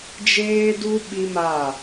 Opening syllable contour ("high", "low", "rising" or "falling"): high